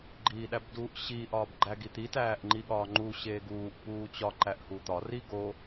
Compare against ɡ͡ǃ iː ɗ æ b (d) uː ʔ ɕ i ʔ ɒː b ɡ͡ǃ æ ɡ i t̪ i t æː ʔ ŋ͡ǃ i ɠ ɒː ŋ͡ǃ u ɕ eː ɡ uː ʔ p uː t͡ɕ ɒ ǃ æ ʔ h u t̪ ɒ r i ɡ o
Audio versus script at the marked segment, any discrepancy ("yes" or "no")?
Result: no